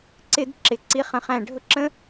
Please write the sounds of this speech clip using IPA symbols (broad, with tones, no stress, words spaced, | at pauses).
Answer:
ǀɪ˧d ǁɪ˩˧ ǀi˧χə̃˩˧χæ̃˧˩ ɖʱʊ˥ǁə̃˥